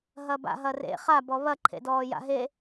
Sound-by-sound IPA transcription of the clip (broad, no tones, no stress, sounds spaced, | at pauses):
ɦ ɐ b a̰ ɦ ɐ r ḛ χ a b ɔ β ɐ ǃʰ ḛ d ɔː j a̰ ɦ e